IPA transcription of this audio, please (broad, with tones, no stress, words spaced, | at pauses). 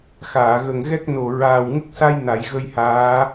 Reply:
xaː˨˩˨ɣə˨˩ŋɣɛ˦˥k̚no˨˩ ɹaː˨˩wŋə˦˥k̚sa˧j na˨˩˦jɣə˧jhaː˧˥